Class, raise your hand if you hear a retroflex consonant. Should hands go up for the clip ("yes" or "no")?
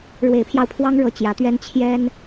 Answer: yes